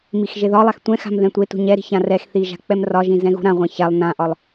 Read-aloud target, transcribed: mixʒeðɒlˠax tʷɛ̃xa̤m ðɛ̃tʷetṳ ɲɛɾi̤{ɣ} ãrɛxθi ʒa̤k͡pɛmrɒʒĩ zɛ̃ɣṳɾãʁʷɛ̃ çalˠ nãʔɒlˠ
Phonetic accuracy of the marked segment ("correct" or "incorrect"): incorrect